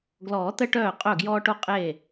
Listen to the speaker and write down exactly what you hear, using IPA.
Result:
ɡ l ɔː˨˩˦ t̪ ə˧ ʈ œː˧˩ qʼ œ˧˩ ɡ j ɔː˧ ʈ o˧ qʼ eː˧˩

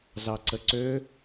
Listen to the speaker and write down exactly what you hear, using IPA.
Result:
z ɑ ǀ ə ǀ ø

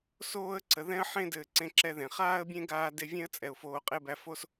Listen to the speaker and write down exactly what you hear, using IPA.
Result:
s oː˦ ə̯ ǀ ə˨ ð ɛ̃˦ ə̯ ħ ẽ˦ d ɘː˧ ǀ ẽ˦ ǁ ɛ˦ ð ẽ˨ χ aː˦ ə̯ bʲ ẽ˦ ɡ aː˧ d e˧ vʲ ẽ˦ ə̯ t͡sʼ ɛ˨ ʊ̯ f oː˧ qʼ e˦ b æ˧ f o˦ s

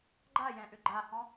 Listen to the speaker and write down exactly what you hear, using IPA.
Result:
ɡ͡ǃ a j ɛ̃ ʔ ʏ ɡ͡ǃ a h ɔ̃

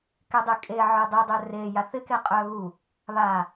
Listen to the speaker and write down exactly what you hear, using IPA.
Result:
k e dˤ ɪ kʼ e ʕ œ dˤ e dˤ œ r e j a θ ɪ k e qʼ œ ɣ u | β a

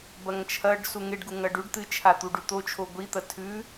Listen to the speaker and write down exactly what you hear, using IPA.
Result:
b ɐ ŋ t͡ʃʰ ɐ ɖ s u ŋ e ɖ ɡ u ŋ ɐ ɖ ʉ ɖ t̪ ɨ t͡ʃʰ a t̪ u ɖ ʉ t̪ o t͡ʃʰ o ɡʷ i t̪ ɐ tʰ ʉ

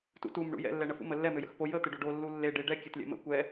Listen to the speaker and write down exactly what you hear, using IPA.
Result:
t ṵ t u m ɳ ṵ j ɛ̰ lː ɛ ɳ ə f ṵ m ə lː ɛ m ø j ə̰ x p o j ə t̪ e ɖ o ɖ o lː u lː e ɖ e ɖ ɛ kʲ ɛ t lʲ ɛ̰ m ə̰ kʷ ɛ

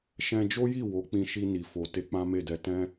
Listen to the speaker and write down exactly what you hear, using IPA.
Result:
ʃ ɛ̃˧ d͡ʒ o˦ j i˦˨ w o˨˦ k͡p ĩ˧ ʃ i˧ n i˨ f o˨ t e˧ k͡p ã˦ m e˦˨ d ɛ˧ t ɛ̃˦

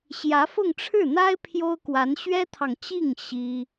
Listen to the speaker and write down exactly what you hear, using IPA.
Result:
ɕ j ä˧˥ f ʊ˥˧ ŋ ʈ͡ʂʰ ɻ̩˥˩ n̪ a˥ ɪ̯ pʰ j o˥ ʊ̯ k w a˧˥ n ɕ ɥ ɛ˥ t̪ʰ ɑ˨ ŋ t͡ɕ i˥˩ ŋ ɕ i˥

